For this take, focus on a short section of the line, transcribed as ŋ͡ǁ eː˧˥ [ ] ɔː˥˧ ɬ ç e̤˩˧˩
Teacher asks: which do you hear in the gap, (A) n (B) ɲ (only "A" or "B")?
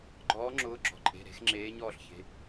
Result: B